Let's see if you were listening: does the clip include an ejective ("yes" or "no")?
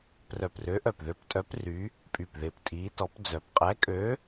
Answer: yes